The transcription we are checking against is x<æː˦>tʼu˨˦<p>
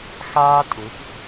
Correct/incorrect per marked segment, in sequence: incorrect, correct

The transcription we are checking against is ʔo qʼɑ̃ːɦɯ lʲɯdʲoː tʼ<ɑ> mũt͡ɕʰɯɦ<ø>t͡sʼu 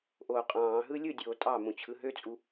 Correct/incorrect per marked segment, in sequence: correct, correct

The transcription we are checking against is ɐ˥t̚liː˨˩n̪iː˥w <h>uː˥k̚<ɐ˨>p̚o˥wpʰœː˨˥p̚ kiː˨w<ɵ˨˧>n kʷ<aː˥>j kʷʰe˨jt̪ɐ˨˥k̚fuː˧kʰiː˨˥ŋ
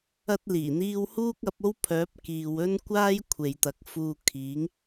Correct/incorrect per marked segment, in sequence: correct, incorrect, incorrect, correct

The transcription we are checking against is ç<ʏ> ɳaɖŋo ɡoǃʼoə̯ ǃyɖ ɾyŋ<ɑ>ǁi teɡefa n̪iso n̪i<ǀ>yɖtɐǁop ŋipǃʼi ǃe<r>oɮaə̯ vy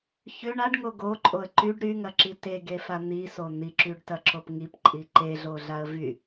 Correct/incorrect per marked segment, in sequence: correct, incorrect, incorrect, incorrect

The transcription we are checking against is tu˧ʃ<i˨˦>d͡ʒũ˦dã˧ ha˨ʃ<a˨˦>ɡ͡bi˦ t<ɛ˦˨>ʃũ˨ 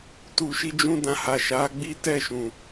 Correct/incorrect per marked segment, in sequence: incorrect, correct, correct

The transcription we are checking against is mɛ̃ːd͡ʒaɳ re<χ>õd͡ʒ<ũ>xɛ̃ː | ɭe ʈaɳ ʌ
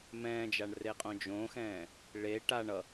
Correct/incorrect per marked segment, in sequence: incorrect, incorrect

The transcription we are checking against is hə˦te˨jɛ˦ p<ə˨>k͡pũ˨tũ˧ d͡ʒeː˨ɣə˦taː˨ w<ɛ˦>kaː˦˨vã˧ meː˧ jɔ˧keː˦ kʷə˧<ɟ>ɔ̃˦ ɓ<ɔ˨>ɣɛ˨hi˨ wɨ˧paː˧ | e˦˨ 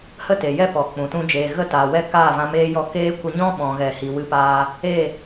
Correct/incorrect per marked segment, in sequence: incorrect, incorrect, incorrect, incorrect

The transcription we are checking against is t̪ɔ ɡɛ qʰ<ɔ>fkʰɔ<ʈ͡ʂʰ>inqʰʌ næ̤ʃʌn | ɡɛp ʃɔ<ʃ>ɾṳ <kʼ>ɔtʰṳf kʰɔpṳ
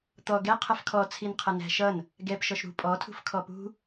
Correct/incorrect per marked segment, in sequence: incorrect, incorrect, correct, incorrect

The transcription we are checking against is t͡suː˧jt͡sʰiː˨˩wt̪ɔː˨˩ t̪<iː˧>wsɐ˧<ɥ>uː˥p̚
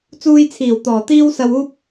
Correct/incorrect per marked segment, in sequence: incorrect, incorrect

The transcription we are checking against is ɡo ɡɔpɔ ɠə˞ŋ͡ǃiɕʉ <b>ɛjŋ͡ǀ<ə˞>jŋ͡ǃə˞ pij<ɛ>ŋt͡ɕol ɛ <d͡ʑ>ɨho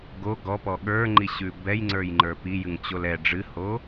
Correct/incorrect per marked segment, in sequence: correct, correct, incorrect, incorrect

